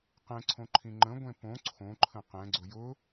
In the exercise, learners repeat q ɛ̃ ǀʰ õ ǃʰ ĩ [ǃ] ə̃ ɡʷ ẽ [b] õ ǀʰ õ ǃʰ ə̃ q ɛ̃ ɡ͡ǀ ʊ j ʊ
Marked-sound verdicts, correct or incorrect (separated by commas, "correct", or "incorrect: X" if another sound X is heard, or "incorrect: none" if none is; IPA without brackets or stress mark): incorrect: ŋ͡ǃ, incorrect: p